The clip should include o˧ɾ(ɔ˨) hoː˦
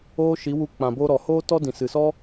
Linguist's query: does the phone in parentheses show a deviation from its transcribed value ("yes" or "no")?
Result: no